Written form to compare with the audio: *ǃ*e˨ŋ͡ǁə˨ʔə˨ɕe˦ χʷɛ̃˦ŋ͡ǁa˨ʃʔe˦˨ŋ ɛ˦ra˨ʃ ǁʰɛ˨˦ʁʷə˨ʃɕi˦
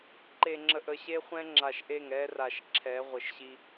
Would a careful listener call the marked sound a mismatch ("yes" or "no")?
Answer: no